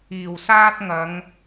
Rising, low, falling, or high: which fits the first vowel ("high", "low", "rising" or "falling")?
low